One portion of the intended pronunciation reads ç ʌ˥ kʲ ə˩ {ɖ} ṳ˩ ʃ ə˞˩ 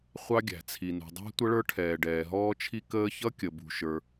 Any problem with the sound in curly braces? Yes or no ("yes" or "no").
yes